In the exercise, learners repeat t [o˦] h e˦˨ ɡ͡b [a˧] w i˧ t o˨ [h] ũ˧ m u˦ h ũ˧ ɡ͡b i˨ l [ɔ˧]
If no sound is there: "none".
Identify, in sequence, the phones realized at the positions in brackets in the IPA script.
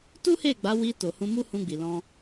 u˦, a˨˦, h, ɔ̃˧

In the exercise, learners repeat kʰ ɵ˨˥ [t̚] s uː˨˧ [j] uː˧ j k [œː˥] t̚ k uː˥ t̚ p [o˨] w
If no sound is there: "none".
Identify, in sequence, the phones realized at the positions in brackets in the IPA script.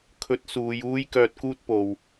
t̚, j, œː˧, o˨

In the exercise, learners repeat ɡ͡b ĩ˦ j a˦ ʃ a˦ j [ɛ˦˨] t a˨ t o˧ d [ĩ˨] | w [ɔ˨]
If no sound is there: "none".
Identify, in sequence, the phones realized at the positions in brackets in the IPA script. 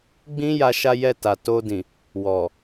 ɛ˦˨, ĩ˨, ɔ˨

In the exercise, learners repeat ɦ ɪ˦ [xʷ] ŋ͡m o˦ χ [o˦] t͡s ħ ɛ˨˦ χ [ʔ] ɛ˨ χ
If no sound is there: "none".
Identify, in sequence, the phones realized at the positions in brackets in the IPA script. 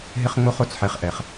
χ, o˦, ʔ

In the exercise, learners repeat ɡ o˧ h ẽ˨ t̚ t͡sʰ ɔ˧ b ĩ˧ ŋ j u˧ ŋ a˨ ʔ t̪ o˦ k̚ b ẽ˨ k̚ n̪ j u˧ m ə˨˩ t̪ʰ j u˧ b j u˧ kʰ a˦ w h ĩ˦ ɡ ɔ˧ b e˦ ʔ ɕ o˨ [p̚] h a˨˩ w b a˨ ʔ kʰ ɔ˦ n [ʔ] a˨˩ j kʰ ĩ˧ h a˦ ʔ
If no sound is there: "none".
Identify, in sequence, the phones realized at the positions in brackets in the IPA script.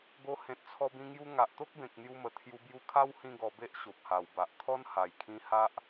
p̚, h

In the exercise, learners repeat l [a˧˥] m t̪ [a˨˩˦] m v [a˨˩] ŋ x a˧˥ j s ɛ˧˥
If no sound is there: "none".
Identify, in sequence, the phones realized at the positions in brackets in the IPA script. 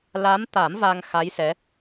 a˧˥, a˨˩˦, a˧

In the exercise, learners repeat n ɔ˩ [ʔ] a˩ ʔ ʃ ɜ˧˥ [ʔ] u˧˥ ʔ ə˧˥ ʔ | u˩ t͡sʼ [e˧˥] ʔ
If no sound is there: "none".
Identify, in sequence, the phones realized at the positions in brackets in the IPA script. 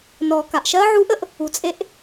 k, ʕ, e˧˥

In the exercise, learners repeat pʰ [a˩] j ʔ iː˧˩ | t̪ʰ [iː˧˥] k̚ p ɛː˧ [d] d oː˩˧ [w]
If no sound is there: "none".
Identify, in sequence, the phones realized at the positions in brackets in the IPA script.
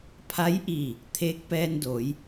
a˧˥, eː˧˥, n, j

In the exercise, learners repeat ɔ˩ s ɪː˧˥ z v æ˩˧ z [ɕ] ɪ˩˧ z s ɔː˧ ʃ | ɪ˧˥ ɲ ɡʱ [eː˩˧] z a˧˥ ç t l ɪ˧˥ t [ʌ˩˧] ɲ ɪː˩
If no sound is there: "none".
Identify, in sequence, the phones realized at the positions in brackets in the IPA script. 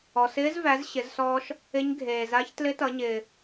ɕ, eː˩, ʌ˩˧

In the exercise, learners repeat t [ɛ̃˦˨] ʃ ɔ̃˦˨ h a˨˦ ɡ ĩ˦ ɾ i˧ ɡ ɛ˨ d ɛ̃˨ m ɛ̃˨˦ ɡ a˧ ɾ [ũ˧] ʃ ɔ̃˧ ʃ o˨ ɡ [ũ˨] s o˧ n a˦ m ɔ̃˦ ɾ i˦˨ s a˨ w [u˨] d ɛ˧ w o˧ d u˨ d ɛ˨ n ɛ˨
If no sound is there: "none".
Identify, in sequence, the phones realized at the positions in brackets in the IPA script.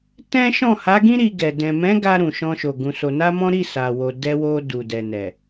ɛ̃˦, ũ˨, ũ˧, o˨

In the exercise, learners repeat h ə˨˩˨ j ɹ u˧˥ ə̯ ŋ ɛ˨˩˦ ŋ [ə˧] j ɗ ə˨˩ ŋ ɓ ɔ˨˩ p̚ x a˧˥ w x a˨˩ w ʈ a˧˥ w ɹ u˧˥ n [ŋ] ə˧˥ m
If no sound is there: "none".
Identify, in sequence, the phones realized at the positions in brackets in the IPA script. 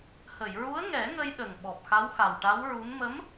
ə˧, m

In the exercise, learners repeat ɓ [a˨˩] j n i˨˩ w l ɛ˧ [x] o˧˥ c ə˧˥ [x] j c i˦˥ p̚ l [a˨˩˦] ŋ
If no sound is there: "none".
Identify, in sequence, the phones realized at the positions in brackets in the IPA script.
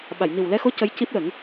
a˨˩˨, x, none, ə˨˩˦

